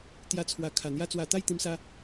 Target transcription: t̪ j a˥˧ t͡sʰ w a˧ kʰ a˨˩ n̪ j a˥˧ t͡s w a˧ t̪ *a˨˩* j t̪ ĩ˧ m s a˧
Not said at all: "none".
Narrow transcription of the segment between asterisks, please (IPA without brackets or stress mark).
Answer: a˥˧